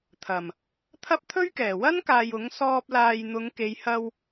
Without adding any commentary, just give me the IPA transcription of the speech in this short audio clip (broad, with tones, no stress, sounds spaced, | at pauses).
t̪ʰ ɐ˨˩ m | t̪ʰ ɐ˥ p̚ t̪ʰ ɵ˥ ɥ k ɛː˨˩ w ɐ˥ n k aː˨ j ʊ˨˥ ŋ s ɔː˧ p̚ l aː˨ j n̪ ʊ˨˧ ŋ k e˨˧ j h ɐ˧ w